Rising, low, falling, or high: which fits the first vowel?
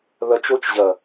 rising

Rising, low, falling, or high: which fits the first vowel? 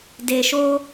low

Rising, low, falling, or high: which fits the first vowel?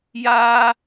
high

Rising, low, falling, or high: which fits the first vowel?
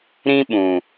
high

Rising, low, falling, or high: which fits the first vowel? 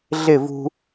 falling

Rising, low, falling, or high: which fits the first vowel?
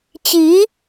rising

